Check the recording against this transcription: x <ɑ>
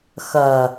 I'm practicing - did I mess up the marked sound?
yes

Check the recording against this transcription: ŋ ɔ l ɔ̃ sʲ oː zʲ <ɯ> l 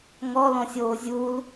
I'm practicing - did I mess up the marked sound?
yes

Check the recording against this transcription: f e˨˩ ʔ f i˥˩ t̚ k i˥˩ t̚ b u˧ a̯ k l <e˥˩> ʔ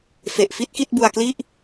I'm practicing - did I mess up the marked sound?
yes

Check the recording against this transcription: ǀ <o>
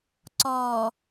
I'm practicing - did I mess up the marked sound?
yes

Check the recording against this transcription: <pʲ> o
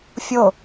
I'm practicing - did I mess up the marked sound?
yes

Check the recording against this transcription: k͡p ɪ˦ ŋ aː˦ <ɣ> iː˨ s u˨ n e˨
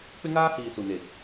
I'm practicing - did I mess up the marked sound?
yes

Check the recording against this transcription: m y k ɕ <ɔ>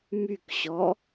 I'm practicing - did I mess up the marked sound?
no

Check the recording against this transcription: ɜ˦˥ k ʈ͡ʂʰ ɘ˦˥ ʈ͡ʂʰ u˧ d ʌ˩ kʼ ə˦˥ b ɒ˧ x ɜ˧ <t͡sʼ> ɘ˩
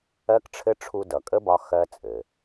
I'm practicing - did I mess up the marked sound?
no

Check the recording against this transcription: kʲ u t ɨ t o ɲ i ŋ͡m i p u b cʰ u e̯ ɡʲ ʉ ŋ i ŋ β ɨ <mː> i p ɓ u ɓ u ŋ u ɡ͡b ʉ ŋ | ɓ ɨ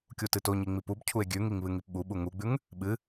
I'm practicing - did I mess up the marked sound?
yes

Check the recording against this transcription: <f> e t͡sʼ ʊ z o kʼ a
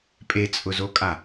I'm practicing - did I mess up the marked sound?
yes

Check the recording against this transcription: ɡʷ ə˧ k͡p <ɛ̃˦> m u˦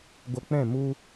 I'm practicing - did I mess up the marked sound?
yes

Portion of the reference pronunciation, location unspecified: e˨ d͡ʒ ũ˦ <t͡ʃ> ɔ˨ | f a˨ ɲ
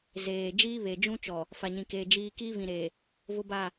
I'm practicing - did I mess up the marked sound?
no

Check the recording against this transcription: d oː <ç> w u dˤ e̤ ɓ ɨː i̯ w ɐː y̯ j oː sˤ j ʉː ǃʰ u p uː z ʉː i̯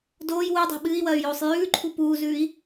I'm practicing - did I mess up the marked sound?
yes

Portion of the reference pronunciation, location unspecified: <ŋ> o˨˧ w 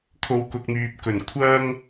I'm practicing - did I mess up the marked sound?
yes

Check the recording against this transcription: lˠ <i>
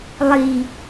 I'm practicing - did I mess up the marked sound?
no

